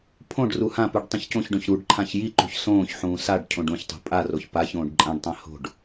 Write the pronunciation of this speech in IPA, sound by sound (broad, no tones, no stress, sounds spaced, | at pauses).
pʰ õ ɖ r u h ã p u ɖ tˤ ĩ ç c õ ç ɖ õ ç ɾ u ɖ ǃʰ ã ç j i ǃ ṳ ç s õː ç ħ ũː s a ɖ cʰ õ ɖ ũ ç tˤ o̤ pʼ a r o ç p a ç õː ɖ ǃʼ ã ɖ tˤ ã h o̤ ɖ